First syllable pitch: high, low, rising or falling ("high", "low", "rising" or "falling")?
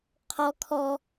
high